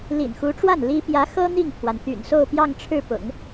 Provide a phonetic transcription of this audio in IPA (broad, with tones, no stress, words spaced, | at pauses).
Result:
lḭ˨˩nxu˧˥ʈ͡ʂwa˥˩n li˥ pjä˧˥xɤ˥ n̪i˥˩ŋpʰwa˩nt̪y̰˨˩n so˥˧ʊ̯pjɑ˥˧ŋʈ͡ʂʰɻ̩˥˩pʊ̰˨˩˦ŋ